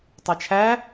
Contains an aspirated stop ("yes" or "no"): yes